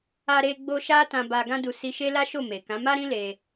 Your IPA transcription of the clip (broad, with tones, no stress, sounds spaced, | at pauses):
a˧ ɾ e˧ ɡ͡b o˧ ʃ a˦ t ã˧ b a˧ ɡ ã˦ d u˧ s i˧ ʃ e˦ l a˦ ʃ o˦˨ m e˨ k ã˨˦ m a˦ ɾ ĩ˦ l e˧